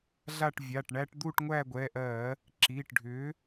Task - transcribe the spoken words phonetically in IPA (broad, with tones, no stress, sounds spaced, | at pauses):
ɮ a˦˨ ʈ vʲ a˩˧˩ ʈ ɳ æ˦ ʈ d̪ u˦˨ ʈ ŋʷ æ˦˨ ɡʷ ɛ˩˧˩ ʔ ɜ˧˩˧ | ǁ i˩˧˩ ʈ ɖʱ ʏ˨˥